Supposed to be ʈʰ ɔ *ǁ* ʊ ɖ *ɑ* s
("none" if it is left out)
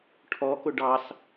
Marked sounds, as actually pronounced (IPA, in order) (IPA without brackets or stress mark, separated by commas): k, ɑ